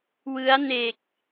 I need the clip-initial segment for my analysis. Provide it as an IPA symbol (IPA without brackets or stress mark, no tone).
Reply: w